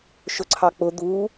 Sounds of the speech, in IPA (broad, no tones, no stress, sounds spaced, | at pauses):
ʃ ʊ ǀʰ ɑ k͡p ʊ d̪ u